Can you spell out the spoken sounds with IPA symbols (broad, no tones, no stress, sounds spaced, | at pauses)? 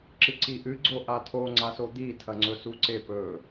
ǁ ɨ ǀ i ʔ ɨ ɡ͡ǀ o ʔ a tʰ o ŋ͡ǀ a s o d̪ i tʰ ɐ ŋ͡ǀ ɵ s u ǀ e p ɵ